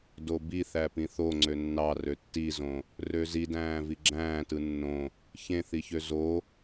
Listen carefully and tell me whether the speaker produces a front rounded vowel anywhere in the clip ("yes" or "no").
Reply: yes